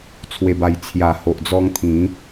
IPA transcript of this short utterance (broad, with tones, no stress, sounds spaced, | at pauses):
t͡sʰ w e˨˩ b a˨˩ j t͡sʰ j a˨˩ h o˨ ʔ d͡z ɔ˧ ŋ t̪ʰ ĩ˨˦